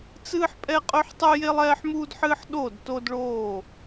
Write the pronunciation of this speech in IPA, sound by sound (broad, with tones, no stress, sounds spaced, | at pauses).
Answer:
t͡s ɨː˥ ħ pʼ ɛ˥ qʼ ɵ˥ ħ tˤ ʉ˥ j e˥ lˠ ɛː˥ ħ m uː˥ d ħ ɨː˥ ħ ɗ o˥˧ d t o˥ d ɭ oː˥˧